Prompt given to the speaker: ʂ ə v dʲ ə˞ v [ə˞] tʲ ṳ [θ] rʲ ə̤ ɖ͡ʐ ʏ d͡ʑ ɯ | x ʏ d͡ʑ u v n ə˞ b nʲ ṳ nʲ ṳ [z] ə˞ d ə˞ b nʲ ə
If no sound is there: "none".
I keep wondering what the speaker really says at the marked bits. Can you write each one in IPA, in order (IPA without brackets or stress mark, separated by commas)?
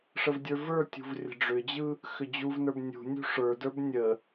ə˞, v, ʂ